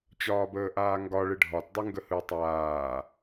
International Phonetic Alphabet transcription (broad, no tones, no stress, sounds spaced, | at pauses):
t͡ɕ ɒː b əː ʔ aː ŋ ɡ ɒ ɭ ɯ ɖʱ ɒ t dˤ ɯ ŋ ɡ ə h ɯ tˤ aː